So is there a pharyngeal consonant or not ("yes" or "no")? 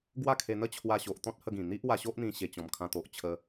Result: no